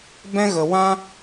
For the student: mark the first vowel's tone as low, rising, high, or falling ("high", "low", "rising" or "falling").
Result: high